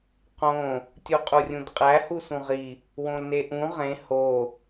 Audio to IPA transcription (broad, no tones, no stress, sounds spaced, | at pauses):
q õ | tʲ u qʼ u rʲ ũ d qʼ æ h u s ũ ʁ i | w õ l n e ʔ ũ ʁ ẽ h o